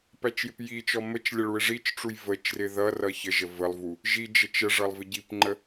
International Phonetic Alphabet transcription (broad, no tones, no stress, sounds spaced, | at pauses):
p æ t͡ʃ j ɪ p j i t͡ʃ ɔ m ə t͡ʃ lʲ ə ɭ u ɪ̯ ʐ i t͡ʃ ʈ͡ʂ u j v ə t͡ʃ r ɪ ð ʌ r ʌ ç ə ʒ ə v ə lˠ v u | ʒ i d͡ʒ ə t͡ʃ ə ʐ ʌ lˠ v ɪ ɟ i p ŋ͡ǃ ə